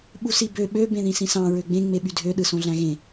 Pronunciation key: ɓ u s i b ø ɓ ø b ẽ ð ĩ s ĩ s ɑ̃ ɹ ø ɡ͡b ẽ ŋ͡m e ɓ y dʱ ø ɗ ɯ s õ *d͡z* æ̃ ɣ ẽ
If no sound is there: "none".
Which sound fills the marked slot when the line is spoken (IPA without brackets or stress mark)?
ɮ